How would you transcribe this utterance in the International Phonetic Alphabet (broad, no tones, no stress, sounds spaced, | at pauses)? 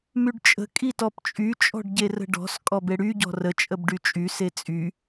m y ɖ t͡ʃʼ ə̤ kʼ i t ɔ p t͡ʃʼ y t͡ʃʼ ɔ̤ ɖ ɟ e r ə̤ ɖ ɔ̤ s kʼ ɔ b e ɽ y ɟ ɔ̤ r ə t͡ʃʼ ə b ɖ y t͡ʃʼ y s e t͡sʼ y